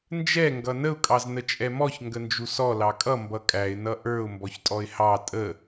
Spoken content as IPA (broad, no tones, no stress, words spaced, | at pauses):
nd͡ʒɛ ŋɡʌnəʊ̯ kʼɑznət͡ʃʼɛmɔç ŋɡənd͡ʒusɔ lɑkʼʌ mbʌkʼæɪ̯ nʌʔə˞ʊ̯ mbɔçtʼɔɪ̯hɑ tʼə